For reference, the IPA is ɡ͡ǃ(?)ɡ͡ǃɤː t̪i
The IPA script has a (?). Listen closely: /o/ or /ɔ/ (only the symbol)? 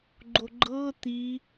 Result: o